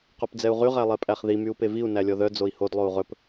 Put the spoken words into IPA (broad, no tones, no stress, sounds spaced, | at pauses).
q o p d͡z ɛ u̯ ʁ y ʁ æ lˠ ɛ pʼ æ χ ð i m y u̯ p e v i u̯ n æ lʲ ɔ ð œ d͡z o i̯ h o d lˠ o u̯ ʁ ɵ p